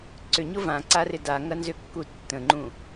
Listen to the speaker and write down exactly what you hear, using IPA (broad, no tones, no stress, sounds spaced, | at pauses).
ǀ ʏ ɲ ʊ v ã ǀ a r ɪ d a ŋ ɐ n z ʏ kː u tː ə̃ ŋ͡ǃ ũ